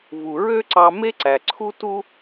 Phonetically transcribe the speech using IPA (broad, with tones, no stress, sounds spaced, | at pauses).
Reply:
v u˩ ɹ ø˥ ǀ ɑ˧ m e˥ ǀ æ˩ ǀʰ u˥ t u˥